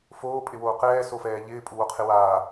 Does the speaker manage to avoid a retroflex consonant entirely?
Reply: yes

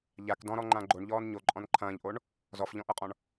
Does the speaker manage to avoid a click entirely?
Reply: no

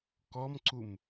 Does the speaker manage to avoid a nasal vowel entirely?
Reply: yes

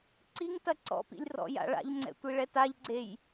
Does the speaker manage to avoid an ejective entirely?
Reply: yes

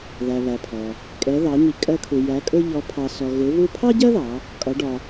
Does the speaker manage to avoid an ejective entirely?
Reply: no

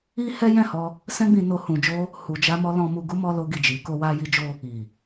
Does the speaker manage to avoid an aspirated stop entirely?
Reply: yes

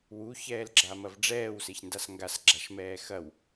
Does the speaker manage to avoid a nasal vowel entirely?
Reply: yes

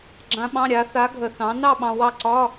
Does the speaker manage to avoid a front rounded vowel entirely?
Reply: yes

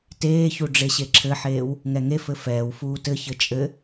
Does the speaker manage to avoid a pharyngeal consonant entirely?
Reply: no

